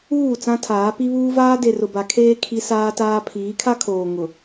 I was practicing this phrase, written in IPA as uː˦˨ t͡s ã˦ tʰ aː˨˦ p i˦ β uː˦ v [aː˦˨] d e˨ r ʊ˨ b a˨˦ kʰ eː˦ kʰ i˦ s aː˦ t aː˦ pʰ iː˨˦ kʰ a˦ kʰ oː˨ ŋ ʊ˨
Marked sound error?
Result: yes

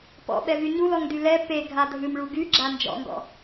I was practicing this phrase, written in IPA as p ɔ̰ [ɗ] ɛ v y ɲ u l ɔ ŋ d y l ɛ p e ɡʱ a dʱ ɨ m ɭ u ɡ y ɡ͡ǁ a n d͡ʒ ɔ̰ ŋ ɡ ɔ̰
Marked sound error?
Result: yes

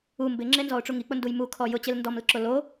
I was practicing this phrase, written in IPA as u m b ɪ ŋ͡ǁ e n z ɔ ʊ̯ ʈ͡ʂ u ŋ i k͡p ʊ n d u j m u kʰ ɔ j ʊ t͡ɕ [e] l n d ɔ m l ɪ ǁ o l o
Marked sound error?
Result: no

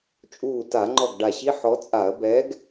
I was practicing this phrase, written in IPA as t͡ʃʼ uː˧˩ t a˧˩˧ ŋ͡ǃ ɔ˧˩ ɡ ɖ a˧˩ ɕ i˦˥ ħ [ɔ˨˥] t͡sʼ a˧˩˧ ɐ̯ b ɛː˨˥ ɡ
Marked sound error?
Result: no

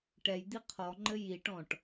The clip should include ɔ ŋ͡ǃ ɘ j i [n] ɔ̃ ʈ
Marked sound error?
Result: yes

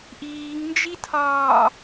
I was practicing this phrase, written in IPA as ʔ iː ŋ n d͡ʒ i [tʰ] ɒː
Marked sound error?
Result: no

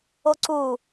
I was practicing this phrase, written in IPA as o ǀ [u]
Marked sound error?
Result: no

